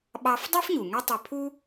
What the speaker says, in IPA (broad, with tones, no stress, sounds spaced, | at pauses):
ɓ ɑ˥ f dˤ ø˥ f ɲ u˩ ŋ ø˥ tˤ ø˧ pʰ u˥